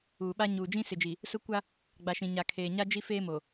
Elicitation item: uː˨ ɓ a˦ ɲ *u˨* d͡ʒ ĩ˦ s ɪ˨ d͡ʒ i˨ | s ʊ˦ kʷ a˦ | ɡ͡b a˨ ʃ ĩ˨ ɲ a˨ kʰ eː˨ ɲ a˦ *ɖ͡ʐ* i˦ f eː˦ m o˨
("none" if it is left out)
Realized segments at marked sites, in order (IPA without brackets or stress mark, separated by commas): uː˨, d͡ʒ